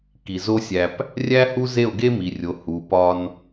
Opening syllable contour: low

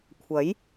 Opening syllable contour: rising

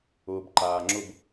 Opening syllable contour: low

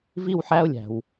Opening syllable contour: falling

